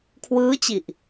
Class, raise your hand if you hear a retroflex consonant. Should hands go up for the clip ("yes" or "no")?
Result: no